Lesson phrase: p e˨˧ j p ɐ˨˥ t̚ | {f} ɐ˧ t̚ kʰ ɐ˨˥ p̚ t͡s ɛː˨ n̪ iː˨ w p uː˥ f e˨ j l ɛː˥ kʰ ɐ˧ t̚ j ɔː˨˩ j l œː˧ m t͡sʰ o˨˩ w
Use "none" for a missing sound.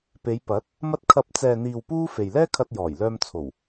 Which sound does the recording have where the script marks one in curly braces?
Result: m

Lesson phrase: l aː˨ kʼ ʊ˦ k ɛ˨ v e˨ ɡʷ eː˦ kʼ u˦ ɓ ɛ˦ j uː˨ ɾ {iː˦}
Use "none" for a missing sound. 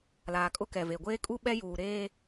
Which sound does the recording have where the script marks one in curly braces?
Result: eː˦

